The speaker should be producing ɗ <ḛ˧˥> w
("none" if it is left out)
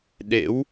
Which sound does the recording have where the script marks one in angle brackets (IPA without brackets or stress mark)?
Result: ḛ˧˥